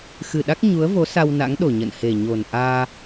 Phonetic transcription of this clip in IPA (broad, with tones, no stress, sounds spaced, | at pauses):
x ɨ˨˩ ɗ a˦˥ k̚ ɲ u˨˦ ə̯ v o˨˦ s a˧ w n a̰˧˥ ŋ ɗ o˨˩ ɲ ə̰˧˨ n h e˨˩ ɲ o˨˩ n ʔ aː˧